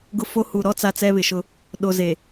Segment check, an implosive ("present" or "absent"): present